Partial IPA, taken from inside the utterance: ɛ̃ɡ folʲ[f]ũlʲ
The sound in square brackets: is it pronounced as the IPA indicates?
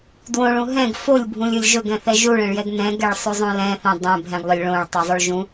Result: no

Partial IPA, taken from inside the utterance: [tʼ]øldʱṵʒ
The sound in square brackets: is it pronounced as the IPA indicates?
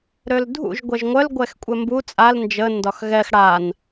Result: no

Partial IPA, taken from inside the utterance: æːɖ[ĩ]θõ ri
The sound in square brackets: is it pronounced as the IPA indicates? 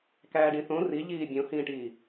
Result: yes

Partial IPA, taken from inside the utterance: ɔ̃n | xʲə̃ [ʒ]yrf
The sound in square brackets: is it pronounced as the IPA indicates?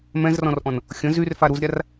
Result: no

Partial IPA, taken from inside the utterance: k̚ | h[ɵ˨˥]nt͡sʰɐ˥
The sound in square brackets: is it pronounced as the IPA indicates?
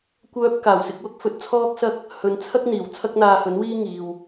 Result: no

